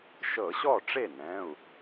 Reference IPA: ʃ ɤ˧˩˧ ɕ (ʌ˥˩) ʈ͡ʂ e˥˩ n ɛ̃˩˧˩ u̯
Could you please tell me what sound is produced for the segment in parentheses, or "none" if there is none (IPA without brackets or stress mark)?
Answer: ɔ˥˩